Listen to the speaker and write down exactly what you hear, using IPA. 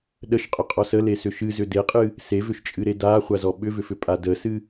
ɗ ə ʃ qʼ ʏ qʼ ɔ s ə l e s ʏ ʃ ɨ z ʏ d e qʼ ɨ | s e v ʏ ʃ t͡ʃʼ ɨ ɾ e d a χʷ a z ɔ ɓ ʏ v ʏ f ʏ pʼ a d ə s ɨ

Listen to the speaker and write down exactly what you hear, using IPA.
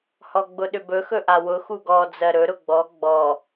h ɔ ɡ͡b ʊ ɗ ʏ b ɵ x ɵ ʔ a w ʊ x u ɡ ɔ d͡z ɜ ɾ ɵ ɾ ʊ ɡ͡b ɔ ɡ͡b ɔ

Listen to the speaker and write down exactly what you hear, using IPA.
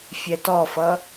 fʲ ɛ t ɔ f ʌ

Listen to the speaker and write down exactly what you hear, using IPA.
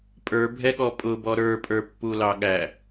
pʼ ə˞ bʱ ɛ ɠ ɔ pʼ ʊ b ɔ ɾ ə˞ pʼ ə˞ pː u l ɑ ɠ æ

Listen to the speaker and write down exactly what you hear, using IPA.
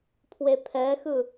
pʰ w e pʰ ɛ x ɯ

